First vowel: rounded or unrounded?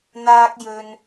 unrounded